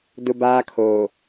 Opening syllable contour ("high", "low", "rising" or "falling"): high